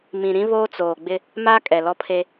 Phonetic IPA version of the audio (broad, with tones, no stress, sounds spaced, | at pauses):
m ĩ˨ ɾ ĩ˦ β oː˦ t͡s oː˨ ɡ͡b ɪ˦ | m a˦ kʼ ɛ˨ l ɔ˦ pʰ e˦